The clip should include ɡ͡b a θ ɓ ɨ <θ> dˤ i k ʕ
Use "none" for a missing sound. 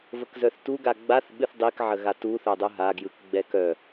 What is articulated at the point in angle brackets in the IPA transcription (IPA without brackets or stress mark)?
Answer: θ